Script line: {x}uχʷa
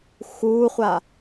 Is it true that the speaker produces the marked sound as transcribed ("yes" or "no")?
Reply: yes